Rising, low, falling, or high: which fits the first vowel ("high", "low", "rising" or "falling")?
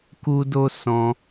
high